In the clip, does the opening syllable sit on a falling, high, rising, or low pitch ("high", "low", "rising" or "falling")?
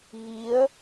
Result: rising